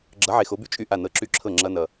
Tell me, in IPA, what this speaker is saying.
ɡ͡ǁ ʌ˨˥ ʕ e˨ x o˨˥ b y˥˩ t͡ʃʼ y˥˩ ʔ a˥˩ n ɤ˧˥˧ ǁ y˥˩ ǁʰ ɤ˥˩ ŋ͡ǁ ʌ˦˥ n ʌ˨

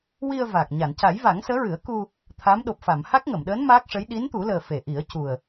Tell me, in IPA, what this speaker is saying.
w i˧ ə̯ v a˨˩ k̚ ɲ a˨˩˨ n c a˨˩˦ j v a˨˩˦ ŋ s əː˧˥ ɹ ɨ˨˩˦ ə̯ k u˧ | t̪ʰ a˧˥ m ɗ o˨˩ p̚ f a˨˩˨ m h a˦˥ k̚ ŋ ə˨˩˨ m ɗ əː˧˥ n m a˦˥ k̚ ʂ ə˧˥ j ɗ i˧˥ n t̪ u˨˩˦ l əː˨˩ f e˨˩˨ ʔ i˨˩˦ ə̯ c u˨˩ ə̯

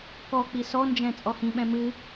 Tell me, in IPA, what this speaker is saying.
k ɔ k͡p i s ɔ n d͡ʒ ɛ̃ t͡sʼ ɔ h ĩ ɓ ɛ̃ m ɨ

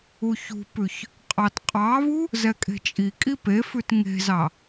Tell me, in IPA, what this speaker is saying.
u ç ṳ p ʉ ç | qʼ ɑ t qʼ ɑ β u | z ɛ kʼ e̤ t͡ʃʼ i kʼ i p e f ʉ t ŋ e̤ z ɑ

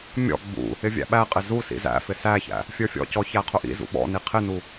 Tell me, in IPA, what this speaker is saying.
mʲ ɔ̰ ɡ͡b ṵ | ɪ vʲ æ̰ ɓ æ qʼ ɪ z u s ḭ z æ̰ f ɪ s æ ç æ̰ | fʲ ə˞ fʲ ɔ̰ c ɔ ç æ qʰ ʊ ʔ ḭ z ṵ ɓ ɔ̰ n i qʰ ɪ n u

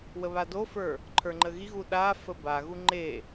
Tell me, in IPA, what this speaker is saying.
w ə β a d o f ə˞ | ǃʰ ə˞ ŋ͡ǃ ə ɣ i ɣ u ɗ a f ə b a ɣ u ŋ͡ǃ e

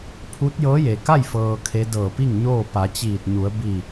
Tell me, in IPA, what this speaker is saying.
pʰ u˧˥ t̚ j ɤː˧˥ j e˩ k a˥˨ j f ɤː˧ kʰ e˧˥ d ɤː˧˩ p i˥˨ ŋ ɲ oː˥˨ p a˩˧ t͡ɕ iː˧˩ t̚ ɲ u˩˧ ə̯ b i˧˩

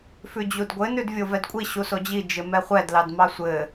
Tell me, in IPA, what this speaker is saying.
f ʉ d͡ʑ u d ɡʷ ɘ n ʉ d vʲ o v ɛ d kʷʼ i ɕ u s o d͡ʑ i d͡ʒ ɘ m ɛ χʷ ɛ d l ɑ d m ɑ sʷ ɘ

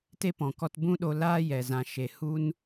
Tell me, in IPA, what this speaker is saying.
t e˦ p ɔ̃˨ k ɔ˧ t b ũ˦ ɗ o˧ l aː˦ j ɛ˨ z ã˨ ʃ e˨ h u˦ n

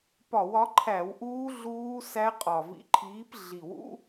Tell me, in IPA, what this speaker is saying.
p ɒ˧˩˧ w ɒ˨˦ ǃʰ æ˧˩˧ w ʔ uː˦˥ ɮ uː˦˥ s æ˦˥ qʼ ɒ˨˩ v ḭ˨˦ ǃʰ iː˨˦ p ɮ i˨˩ w ṵ˦˥

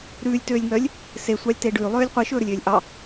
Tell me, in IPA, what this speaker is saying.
ɾ ʉː lʲ t øː lʲ ŋ œː lʲ | s e sʷ ɑ lʲ t e ɖ ʉː lˠ øː lʲ qʷ i ʃ ɵː ɾ ɵ lʲ øː lʲ ʔ ɑ

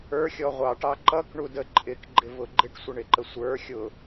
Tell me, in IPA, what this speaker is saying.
ə˞ xʲ ɔ ʁʷ ɑ ʈ ɑ ǃ ʌ k ɳ u d ə ǃʼ ɪ k ɡ͡ǃ ɪ v ʊ ɡ͡ǃ ɪ ʈ sʷ ɪ ɳ ɪ ǃ ə sʷ ə˞ xʲ ʊ

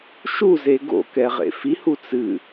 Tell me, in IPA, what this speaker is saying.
ʃ u z e ɡ o̰ k ɛ ʁ ḛ f i h u t͡s ɨ

